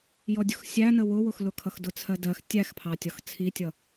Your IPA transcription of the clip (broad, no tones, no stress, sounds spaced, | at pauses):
j ɔ dʲ ʊ x sʲ æ n ə w ʊ w ʊ x l ʊ kʰ ʌ x d ʊ t͡sʰ ɜ d ɜ x tʲ æ x pʰ ɑ tʲ ɒ x t͡sʰ i tʲ ʌ